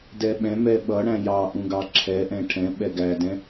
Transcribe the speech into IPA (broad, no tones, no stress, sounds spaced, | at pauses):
d ɛ ɓ ɛ̃ m ɛ ɓ ʌ ɽ æ̃ j ɑ ʔ ũ ɡ ɑ ǁʰ ɛ ʔ ɛ̃ ʈʰ ɛ̃ ɓ ɛ ɡ æ d ɛ̃